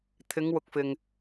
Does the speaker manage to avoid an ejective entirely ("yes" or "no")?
yes